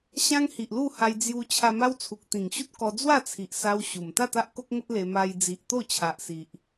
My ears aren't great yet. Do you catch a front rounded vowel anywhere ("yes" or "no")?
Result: no